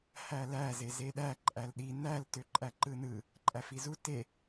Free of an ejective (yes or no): no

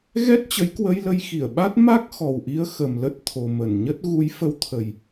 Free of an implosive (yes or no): no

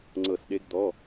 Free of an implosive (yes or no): no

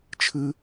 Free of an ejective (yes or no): yes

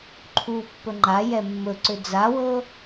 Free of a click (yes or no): no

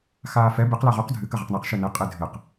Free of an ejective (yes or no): no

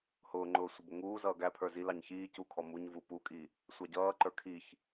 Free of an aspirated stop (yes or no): no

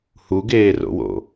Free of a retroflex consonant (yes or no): yes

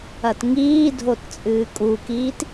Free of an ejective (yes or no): no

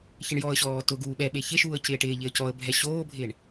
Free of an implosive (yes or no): no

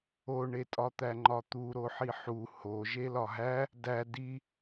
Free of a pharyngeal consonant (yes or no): no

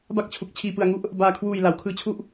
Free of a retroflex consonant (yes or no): yes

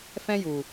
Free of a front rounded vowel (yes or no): yes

